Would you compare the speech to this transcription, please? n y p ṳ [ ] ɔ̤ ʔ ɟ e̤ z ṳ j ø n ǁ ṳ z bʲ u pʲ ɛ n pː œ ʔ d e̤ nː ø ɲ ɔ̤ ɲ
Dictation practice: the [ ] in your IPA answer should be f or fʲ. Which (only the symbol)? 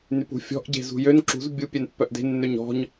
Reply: fʲ